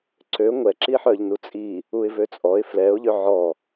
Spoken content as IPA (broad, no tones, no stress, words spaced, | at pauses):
ǀø ŋʷɛǁiħœʎ nut͡sʼi | uɪ̯vøt͡sʼɔɪ̯ flɛʊ̯ʎø ʕɔ